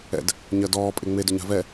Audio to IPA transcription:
ɛ̰ d | ɲ ɜ d ɔː pʼ e ŋ͡m e d ʏ ɲ a̤ v ɛ

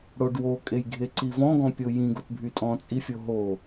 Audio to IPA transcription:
ɽ o ɖ w o kʼ e j ɡʱ e ǀ i v ɔ̃ ɡ ɔ̃ pʲ o j ĩ ɡ o t bʱ y tʼ ɔ̃ t͡sʼ i fʲ o ɦ o

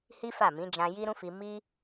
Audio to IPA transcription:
h i˦ f a˦˨ m ĩ˨˦ d͡ʒ ã˧ j i˦ ɾ ũ˦ f i˧ m i˦

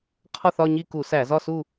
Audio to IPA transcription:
qʰ ɒ˥˧ θ ɒ˥˧ ɲ i˥˧ k u˧˩˧ s æ˧˩˧ z ɒ˥˧ s u˥˧

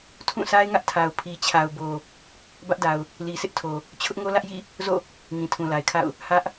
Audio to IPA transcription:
tʰ ũ˦˨ s a˦ ɪ̯ ŋ ä˦ ʔ tʰ a˨ ʊ̯ pʰ i˨ t͡ɕʰ a˨ ʊ̯ b o˨ | b ä˦ ʔ d a˨ ʊ̯ | l i˨ s ɪ˦ ʔ tʰ o˨ | t͡ɕʰ ʊ˦ ʔ ŋ o˦ l ä˦ ʔ j ḭ˦˨ | z o̰˦˨ | ŋ ĩ˨ tʰ ũ˨ l a˨ ɪ̯ kʰ a̰˦˨ ʊ̯ | h ä˦ ʔ

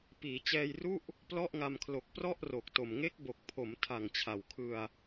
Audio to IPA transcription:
p iː˩˦ t͡ɕ ɛː˧ j r u˥˩ ʔ | p l ɔ˥˩ ʔ ŋ a˧ m kʰ l o˨˩ k̚ p r ɔ˥˩ ʔ r o˨˩ k̚ t o˨˩ m ŋ e˦˥ k̚ b o˨˩ k̚ pʰ o˩˦ m tʰ a˨˩ ŋ t͡ɕʰ a˨˩ w kʰ ɯ˧ a̯

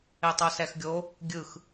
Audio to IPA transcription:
e tˤ o s ɛ x ɡʲ o | ɡʲ ɯ x

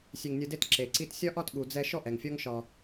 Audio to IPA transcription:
sʲ e˧ ŋ nʲ ɯ˧ d e˦ t ǁ e˨ ǀ i˦ t sʲ ɒ˦ ʔ ɒ˦ t ɠ u˨ d͡z ɛ˦ ʃ ɔ˦ ʔ ɛ˨ ŋ fʲ ɔ˦ ŋ ʃ ɒ˧

